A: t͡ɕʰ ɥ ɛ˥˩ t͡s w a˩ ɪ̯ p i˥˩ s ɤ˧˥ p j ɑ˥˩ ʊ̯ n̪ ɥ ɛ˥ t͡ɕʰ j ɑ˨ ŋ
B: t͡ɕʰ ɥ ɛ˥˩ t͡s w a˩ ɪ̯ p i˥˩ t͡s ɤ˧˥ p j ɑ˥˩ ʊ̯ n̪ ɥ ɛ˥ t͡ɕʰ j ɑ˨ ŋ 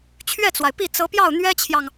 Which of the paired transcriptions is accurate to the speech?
B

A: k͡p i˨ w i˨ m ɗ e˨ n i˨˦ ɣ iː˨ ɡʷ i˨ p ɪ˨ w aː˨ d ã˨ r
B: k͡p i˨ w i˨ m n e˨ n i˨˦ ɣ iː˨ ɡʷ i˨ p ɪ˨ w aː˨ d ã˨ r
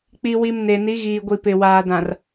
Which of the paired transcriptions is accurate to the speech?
B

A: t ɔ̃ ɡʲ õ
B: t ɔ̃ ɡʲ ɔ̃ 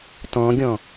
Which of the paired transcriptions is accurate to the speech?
B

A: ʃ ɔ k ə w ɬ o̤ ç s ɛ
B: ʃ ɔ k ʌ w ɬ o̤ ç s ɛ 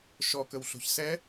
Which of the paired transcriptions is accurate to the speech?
A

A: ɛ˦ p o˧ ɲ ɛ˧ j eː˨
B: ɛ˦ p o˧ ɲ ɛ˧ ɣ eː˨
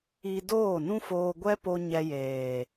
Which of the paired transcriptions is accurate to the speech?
A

